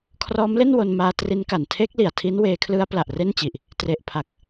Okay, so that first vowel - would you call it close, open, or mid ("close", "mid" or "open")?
mid